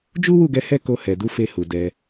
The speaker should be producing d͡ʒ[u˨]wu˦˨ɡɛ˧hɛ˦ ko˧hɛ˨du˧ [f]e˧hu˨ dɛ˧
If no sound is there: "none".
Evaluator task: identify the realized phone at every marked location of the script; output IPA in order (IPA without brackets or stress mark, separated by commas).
u˦, f